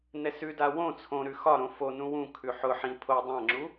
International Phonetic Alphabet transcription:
n ɛ s ʉ d a w õ t͡sʰ õ ɾ ʉ x ɒ ɾ õ f o n ũ w ũ kʰ ʉ ħ ʊ ħ ĩ pʰ o dˤ ã ŋ͡ǁ u

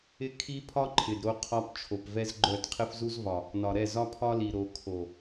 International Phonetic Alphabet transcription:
ɪ˦ kʰ i˦ pʰ ɒ˦ ǃʰ ɪ˨ d ɾ o˦ qʰ ɒ˦ p t͡ʃʰ o˨ p v ɛ˦ z ɡ͡ǃ œ˦˨ d qʰ ɪ˦ f z u˦ z v ɒ˨ | n ɒ˨ ɾ ɛ˦˨ z ɒ˦ pʰ ɒ˦ l i˨ ɾ o˨ kʰ o˨

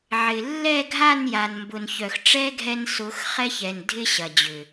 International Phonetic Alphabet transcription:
ʕ ɪ˨ lː ɛ˦˨ ɡʱ a˦˨ n j a˨ n m b ʊ˨ n ç œ˨ x ʈ͡ʂ ɛ˦ ɡʱ ɛ˧ n s ʊ˨˦ x χ ɛ˦ ç ɛ˨ n dʱ ɪ˦ ɕ ɐ˨ d͡ʑ ʏ˨

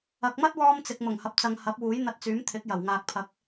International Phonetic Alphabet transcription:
ɐ˨ k̚ m ɐ˥ t̚ w ɔː˧ m t͡s ɪ˨ k̚ m ʊ˨˩ ŋ h ɐ˨ p̚ t͡s ɐ˨ ŋ h ɐ˨˥ p̚ w uː˨˥ j n̪ ɐ˧ t̚ t͡s yː˨˥ m t̪ʰ ɪ˨˥ k̚ j ɐ˨˩ w ŋ aː˨ k̚ pʰ ɐ˨˥ k̚

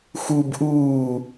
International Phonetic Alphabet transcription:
x u b ʔ uː

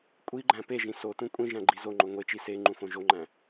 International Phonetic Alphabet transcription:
kʷʼ i ɡ͡ǃ æ̃ p e ʒ ĩ s o t ũ kʷʼ ĩ ʒ æ̃ ɡ͡ǃ i z o ŋ͡ǃ o ŋʷ e t͡ʃ i s e ŋ͡ǃ ũ f õ ʒ o ŋ͡ǃ æ̃

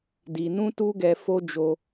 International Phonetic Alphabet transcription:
d i˨ n ũ˧ t u˧ ɡ ɛ˧ f o˦ d͡ʒ o˧

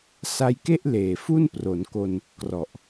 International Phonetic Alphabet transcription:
s a˧ j k e˥˩ ʔ l eː˨˩ f u˥˩ n p r o˩˦ n k o˧ n | k r ɔ˨˩ ʔ

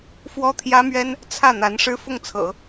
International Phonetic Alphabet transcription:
f w ɔ˥ t̪ʰ j ä˥ m ɥ ɛ˥ n | t͡sʰ ä˥˩ n̪ a˧˥ n ʂ ɻ̩˥ f ʊ˥˩ ŋ t͡sʰ ɤ̰˨˩˦

